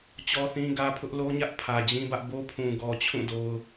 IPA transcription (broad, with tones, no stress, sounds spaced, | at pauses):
t͡ɕ ɔ˦ θ ĩ˦ ɡ ä˦ pʰ ʊ˦ ʔ l o˦ ɲ ä˦ ʔ pʰ ä˨ d͡ʑ ĩ˦ b ä˦ ʔ b o˦ pʰ ũ˨ ɡ ɔ˨ t͡ɕʰ ũ˦˨ d o˨ ʊ̯